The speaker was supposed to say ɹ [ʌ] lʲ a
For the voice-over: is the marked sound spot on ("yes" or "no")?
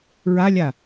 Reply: no